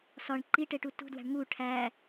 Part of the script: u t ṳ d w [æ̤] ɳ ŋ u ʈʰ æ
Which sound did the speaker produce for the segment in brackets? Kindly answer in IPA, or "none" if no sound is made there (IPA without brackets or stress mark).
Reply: æ̤